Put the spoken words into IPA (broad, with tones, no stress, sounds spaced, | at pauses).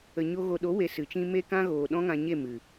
ə˨ ɲ o˧ ɣ o˨ ɗ o˨˦ w e˨ s ɨ˨ t͡ʃ ĩ˦ m e˦ k ã˦ ɣ oː˨ ɗ ɔ̃˦ ŋ ã˧ ɲ e˦˨ m ɨ˨